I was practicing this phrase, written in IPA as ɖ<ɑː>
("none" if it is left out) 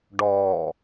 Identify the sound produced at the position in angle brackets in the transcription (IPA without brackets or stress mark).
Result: ɔː